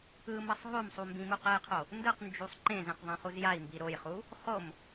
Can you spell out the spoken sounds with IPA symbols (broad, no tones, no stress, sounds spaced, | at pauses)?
ɯ m ʌ sˤ ɦ o m sˤ u m b ĩ m u q ɛ j qʰ o | n d ɯ q n d͡ʒ u sˤ ǃ ẽ z ẽ q ðˤ ẽ χ u z j a i̯ m b i ɾ o j χ u | χ o m